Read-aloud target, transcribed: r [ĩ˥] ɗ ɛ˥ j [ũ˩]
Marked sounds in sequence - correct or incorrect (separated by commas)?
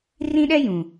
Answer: correct, correct